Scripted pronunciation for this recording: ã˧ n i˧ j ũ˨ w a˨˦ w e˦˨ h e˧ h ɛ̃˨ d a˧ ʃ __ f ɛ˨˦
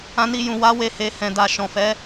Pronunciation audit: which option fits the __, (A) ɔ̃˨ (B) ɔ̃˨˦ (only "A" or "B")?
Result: A